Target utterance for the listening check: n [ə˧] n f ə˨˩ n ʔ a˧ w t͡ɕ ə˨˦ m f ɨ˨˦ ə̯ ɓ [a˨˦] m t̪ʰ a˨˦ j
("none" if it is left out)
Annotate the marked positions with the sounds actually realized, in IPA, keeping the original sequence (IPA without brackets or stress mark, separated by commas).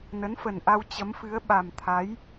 ə˨˦, a˨˩